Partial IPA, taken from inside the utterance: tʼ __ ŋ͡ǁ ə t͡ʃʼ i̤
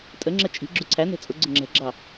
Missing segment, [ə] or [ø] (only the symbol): ə